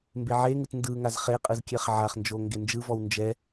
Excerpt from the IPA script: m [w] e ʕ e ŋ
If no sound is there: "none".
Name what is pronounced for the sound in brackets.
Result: b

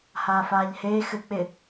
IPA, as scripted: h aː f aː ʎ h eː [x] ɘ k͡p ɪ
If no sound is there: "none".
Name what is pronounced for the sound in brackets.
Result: x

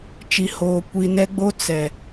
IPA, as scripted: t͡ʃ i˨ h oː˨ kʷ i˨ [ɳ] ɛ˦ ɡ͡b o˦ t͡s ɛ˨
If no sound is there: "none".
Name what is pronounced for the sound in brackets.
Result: n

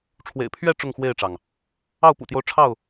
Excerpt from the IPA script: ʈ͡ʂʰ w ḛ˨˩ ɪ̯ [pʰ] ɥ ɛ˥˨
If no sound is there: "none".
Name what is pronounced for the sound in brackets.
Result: pʰ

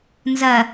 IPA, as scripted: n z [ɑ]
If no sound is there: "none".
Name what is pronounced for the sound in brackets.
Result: ɐ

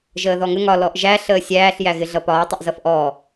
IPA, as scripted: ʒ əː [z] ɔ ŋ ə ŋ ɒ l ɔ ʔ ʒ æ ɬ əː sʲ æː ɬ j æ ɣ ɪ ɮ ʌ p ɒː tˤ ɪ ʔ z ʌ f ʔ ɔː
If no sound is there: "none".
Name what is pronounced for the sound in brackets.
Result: ð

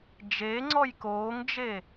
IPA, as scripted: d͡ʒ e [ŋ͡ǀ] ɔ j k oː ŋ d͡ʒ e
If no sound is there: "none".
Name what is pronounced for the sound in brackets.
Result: ŋ͡ǀ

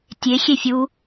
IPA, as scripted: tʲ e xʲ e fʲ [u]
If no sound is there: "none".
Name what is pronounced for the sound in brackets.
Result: u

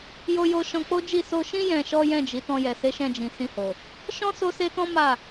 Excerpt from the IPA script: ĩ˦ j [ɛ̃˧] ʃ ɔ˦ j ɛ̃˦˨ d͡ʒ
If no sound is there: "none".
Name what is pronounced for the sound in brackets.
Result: ɛ̃˧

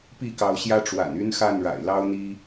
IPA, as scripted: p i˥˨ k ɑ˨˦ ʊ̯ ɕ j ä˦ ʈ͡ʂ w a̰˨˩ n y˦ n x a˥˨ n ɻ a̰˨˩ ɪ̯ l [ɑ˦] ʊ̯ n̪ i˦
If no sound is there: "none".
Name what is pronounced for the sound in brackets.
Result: ɑ˦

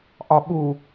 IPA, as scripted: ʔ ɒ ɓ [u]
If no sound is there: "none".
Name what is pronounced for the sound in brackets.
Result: u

